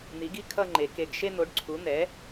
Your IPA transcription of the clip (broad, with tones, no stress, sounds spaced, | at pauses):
n̪ i˩˥ ɡ i˥˧ kʰ ʌ˥˧ ŋ͡ǃ e˩˥ k e˧˩ ɡ ʃ e˥˧ n̪ o˩˥ ɖ ǀʰ u˩˥ n̪ ɛ˩˥